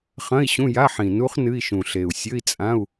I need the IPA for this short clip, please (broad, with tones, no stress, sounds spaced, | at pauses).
χ ɐ̃˧˥˧ i̯ ɕ ũ˧˥˧ j a˧˥˧ ħ ĩ˨˩ n u˦˥ χ n ɨ˧˥˧ i̯ ʃ ũ˨˩ ɬ e˨˩ u̯ sʲ ɵ˧˥˧ i̯ t͡sʼ ã˧˥˧ u̯